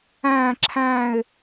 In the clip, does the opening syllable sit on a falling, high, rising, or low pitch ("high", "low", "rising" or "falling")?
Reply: falling